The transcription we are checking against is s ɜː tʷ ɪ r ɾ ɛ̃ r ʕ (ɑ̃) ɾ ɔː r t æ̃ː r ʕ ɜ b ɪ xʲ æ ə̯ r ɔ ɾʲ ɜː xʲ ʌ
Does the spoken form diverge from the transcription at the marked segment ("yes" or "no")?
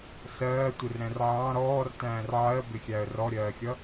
no